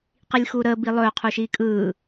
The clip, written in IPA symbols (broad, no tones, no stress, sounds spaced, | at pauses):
q i lʲ x uː ɾ əː b i lˠ ɵː qʰ u ʃ iː kʼ ɯː